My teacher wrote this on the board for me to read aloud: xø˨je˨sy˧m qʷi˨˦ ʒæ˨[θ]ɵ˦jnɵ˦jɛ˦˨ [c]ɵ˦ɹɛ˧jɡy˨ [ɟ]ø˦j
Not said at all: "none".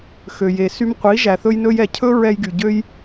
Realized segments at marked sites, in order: θ, cʰ, ɟ

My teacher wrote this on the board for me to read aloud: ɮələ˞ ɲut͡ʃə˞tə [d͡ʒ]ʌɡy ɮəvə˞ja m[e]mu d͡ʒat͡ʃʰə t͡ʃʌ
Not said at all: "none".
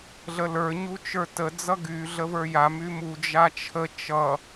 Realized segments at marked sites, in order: d͡z, y

